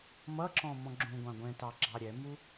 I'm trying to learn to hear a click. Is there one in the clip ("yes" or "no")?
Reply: yes